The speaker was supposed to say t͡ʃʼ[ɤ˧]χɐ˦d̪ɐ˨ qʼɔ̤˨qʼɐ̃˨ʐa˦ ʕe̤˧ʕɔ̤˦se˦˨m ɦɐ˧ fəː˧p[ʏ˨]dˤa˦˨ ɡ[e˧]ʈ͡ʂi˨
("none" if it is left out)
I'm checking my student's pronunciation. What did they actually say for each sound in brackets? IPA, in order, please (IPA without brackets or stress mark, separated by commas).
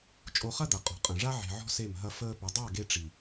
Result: o˧, ʏ˨, e˧